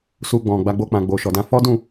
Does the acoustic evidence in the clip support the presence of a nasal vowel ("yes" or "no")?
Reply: yes